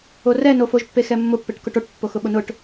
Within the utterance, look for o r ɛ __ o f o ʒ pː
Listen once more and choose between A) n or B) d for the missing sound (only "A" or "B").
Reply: A